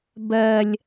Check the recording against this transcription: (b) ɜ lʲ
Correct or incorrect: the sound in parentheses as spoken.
correct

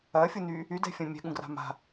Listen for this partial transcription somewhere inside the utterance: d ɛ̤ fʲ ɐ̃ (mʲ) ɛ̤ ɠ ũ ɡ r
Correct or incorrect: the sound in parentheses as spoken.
correct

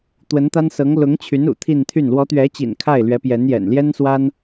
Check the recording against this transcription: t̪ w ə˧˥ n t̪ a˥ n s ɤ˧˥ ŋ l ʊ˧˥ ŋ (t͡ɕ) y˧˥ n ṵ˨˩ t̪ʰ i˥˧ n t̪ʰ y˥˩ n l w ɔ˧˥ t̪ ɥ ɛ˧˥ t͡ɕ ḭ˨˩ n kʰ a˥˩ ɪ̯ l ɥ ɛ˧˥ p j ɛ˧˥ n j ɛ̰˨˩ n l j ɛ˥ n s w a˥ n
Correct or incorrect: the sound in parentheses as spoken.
incorrect: t͡ɕʰ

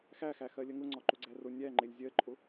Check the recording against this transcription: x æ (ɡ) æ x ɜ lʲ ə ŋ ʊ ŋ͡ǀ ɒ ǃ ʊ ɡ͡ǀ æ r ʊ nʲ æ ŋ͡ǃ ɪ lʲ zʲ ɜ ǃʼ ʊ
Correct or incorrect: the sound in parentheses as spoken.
incorrect: x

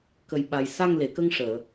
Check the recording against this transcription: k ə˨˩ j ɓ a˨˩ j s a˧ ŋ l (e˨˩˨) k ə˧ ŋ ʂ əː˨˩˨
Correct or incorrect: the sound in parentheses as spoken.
correct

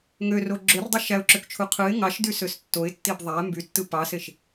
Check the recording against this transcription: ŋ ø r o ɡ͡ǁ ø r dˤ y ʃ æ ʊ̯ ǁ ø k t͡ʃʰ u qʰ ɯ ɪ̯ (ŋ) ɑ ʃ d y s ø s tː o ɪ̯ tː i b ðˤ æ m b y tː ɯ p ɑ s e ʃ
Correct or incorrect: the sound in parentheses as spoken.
correct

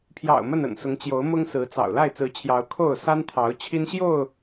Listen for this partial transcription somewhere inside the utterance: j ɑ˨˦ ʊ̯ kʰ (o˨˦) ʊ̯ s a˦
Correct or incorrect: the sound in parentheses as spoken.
incorrect: o˥˨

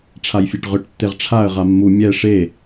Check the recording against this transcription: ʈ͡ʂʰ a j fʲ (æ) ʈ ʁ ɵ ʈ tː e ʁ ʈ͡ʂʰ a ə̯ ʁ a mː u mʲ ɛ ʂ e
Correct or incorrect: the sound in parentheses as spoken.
correct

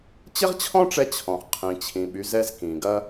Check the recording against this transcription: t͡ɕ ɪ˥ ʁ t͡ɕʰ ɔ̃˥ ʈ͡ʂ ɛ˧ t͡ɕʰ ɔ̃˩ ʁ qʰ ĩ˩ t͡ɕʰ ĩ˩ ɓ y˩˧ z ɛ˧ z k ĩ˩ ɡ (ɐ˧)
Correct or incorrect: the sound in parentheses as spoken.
correct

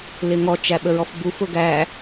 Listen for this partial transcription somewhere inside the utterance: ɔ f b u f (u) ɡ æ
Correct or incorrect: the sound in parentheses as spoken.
incorrect: ʊ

